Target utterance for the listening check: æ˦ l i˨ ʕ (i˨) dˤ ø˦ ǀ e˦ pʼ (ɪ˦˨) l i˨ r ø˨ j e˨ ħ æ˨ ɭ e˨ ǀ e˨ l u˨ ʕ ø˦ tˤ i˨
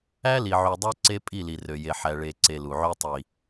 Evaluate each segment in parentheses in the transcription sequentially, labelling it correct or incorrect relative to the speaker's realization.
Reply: incorrect, incorrect

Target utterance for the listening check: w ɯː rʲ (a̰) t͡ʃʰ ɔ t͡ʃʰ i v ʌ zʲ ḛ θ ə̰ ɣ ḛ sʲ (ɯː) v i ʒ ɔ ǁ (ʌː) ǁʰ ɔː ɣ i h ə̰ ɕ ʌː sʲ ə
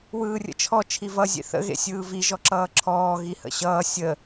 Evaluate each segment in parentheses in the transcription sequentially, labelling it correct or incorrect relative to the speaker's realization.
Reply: incorrect, correct, correct

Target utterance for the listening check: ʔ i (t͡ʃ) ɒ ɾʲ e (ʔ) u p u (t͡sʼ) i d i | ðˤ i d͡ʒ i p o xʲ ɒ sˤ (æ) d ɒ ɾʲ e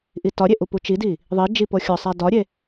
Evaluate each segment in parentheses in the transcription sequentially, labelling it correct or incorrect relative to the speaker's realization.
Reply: incorrect, correct, incorrect, correct

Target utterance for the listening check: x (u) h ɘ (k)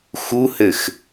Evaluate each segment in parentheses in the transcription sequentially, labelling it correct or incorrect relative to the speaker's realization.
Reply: correct, incorrect

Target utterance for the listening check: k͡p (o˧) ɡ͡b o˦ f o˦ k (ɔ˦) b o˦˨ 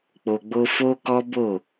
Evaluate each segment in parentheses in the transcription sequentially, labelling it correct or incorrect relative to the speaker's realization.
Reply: correct, correct

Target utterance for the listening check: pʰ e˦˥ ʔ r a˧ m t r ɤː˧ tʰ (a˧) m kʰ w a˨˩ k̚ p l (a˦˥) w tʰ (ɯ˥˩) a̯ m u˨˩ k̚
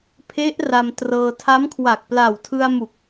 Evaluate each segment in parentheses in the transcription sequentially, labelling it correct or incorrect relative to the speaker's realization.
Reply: incorrect, incorrect, incorrect

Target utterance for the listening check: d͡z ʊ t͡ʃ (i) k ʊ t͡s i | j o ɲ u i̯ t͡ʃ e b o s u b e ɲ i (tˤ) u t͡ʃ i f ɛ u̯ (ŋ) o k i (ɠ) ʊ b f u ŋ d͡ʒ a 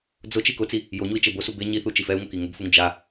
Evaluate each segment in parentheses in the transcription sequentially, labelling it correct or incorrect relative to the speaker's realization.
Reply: correct, incorrect, correct, incorrect

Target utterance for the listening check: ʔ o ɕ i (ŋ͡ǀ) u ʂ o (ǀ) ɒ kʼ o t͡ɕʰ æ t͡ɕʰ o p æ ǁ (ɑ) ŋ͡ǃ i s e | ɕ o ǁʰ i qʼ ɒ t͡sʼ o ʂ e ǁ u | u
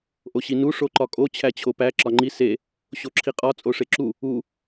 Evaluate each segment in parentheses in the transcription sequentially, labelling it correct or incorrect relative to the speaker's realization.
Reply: incorrect, incorrect, incorrect

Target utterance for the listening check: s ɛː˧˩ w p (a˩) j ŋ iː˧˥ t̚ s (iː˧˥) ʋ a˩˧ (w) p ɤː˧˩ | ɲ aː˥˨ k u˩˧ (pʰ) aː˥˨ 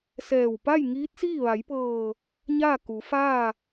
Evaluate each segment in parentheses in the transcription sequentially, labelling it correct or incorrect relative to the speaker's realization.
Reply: incorrect, incorrect, incorrect, incorrect

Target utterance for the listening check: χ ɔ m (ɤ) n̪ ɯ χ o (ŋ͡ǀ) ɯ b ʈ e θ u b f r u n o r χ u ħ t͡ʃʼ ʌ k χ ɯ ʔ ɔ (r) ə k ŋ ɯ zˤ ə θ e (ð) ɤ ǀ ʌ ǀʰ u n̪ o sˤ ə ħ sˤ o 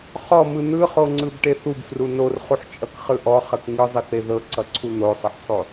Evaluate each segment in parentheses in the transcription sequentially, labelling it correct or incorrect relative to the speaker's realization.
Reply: incorrect, correct, incorrect, correct

